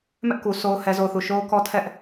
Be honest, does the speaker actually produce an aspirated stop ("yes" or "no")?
yes